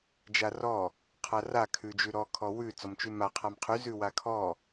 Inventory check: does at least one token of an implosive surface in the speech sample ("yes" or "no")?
no